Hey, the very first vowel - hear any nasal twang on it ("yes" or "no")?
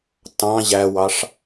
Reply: yes